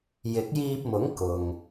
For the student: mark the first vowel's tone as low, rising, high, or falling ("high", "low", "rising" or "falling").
rising